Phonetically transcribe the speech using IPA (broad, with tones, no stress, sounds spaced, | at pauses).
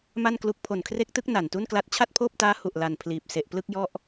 m a˥˩ n k l u˦˥ k̚ pʰ o˨˩ n kʰ r e˦˥ k̚ t ɯ˦˥ k̚ n a˨˩ n t u˥˩ n k l a˦˥ t̚ t͡ɕʰ a˥˩ t̚ pʰ oː˥˩ p̚ t aː˦˥ h u˨˩ ʔ l a˨˩ n pʰ l iː˨˩ p̚ s e˨˩ ʔ p l ɯ˥˩ k̚ j ɔ˥˩ ʔ